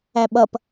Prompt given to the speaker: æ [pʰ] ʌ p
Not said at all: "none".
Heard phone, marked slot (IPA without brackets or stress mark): ɓ